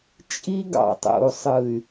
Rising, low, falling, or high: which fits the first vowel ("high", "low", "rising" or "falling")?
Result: high